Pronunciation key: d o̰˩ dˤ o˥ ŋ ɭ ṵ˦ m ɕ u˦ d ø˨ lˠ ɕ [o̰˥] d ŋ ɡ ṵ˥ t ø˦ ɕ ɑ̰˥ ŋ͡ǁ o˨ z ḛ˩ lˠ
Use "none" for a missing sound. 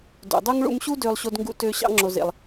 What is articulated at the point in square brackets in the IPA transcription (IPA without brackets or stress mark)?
o˥